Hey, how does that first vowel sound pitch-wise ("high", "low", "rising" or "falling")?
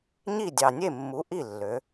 falling